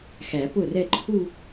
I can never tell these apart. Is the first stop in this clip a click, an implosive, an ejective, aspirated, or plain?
plain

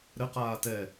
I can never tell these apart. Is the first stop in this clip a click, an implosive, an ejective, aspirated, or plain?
plain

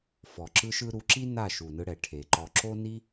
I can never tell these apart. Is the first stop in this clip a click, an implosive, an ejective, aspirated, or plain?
click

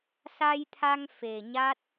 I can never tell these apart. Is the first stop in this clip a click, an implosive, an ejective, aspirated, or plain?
aspirated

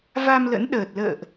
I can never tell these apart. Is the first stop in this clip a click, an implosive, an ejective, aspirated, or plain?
implosive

